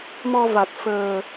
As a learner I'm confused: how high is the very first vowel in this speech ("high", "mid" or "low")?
mid